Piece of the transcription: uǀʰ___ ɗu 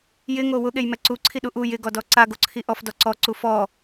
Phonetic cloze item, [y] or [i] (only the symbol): i